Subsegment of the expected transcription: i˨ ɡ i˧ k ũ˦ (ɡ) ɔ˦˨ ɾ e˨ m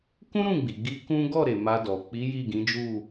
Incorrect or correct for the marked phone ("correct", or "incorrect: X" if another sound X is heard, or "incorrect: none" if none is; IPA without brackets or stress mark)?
correct